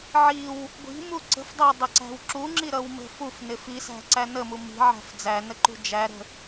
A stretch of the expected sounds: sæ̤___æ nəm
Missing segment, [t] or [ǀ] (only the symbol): ǀ